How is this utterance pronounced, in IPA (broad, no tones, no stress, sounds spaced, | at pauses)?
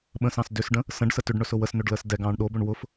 ɓ ə̃ s ɑ̃ s d ʏ s ɖ ə̃ | s ə̃ ɖ s ə t ʏ ɖ ɳ ɵ s ʊ w ə s n ɵ ɖ l əː s d ɛ ɡ ɑ̃ː ɳ ɗ o b ʏ ɳ w ʊ f